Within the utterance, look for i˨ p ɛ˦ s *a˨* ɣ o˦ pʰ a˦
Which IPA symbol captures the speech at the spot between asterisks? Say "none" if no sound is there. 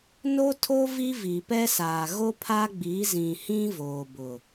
aː˨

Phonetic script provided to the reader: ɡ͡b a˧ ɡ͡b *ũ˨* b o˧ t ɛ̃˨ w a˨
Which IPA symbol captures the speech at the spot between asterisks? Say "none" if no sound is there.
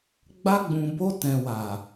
ũ˨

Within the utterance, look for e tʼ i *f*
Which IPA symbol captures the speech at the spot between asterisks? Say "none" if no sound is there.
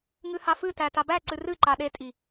none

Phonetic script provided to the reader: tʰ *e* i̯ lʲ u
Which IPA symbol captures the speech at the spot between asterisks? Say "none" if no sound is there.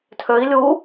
ø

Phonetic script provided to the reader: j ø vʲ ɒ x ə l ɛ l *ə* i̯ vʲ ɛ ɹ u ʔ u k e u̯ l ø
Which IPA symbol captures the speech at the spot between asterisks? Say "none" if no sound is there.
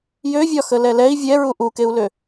ɛ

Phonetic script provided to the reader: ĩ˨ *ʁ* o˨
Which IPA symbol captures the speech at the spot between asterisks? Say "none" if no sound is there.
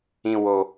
w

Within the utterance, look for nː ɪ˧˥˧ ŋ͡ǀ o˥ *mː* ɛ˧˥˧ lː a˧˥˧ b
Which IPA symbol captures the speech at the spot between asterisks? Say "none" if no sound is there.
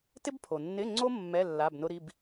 mː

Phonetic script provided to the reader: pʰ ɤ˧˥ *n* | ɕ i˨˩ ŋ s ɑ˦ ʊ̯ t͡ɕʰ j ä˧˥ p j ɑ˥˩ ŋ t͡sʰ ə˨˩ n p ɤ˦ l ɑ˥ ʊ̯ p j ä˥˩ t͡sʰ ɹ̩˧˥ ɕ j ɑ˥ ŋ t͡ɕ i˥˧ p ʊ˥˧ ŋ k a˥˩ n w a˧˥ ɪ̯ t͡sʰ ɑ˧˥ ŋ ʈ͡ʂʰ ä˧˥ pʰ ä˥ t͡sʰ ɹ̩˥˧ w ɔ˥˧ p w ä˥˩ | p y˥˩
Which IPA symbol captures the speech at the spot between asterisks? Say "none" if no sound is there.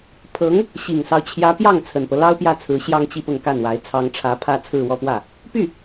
ŋ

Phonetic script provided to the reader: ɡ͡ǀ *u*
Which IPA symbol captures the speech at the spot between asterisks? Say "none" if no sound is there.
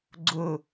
ʊ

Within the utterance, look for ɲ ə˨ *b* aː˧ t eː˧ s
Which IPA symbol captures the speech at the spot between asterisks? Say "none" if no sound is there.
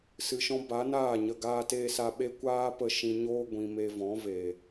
ɡ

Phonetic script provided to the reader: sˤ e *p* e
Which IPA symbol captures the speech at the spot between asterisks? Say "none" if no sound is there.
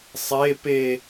p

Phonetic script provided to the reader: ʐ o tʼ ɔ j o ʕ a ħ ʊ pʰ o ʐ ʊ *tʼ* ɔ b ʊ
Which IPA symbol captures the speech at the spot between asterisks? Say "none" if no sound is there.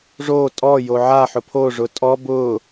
tʼ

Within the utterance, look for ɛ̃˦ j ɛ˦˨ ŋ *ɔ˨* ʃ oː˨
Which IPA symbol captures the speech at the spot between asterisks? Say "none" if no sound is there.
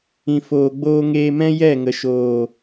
ə˨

